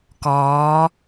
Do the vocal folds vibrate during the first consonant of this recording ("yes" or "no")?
no